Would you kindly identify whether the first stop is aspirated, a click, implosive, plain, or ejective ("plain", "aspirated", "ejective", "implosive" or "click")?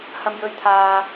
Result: aspirated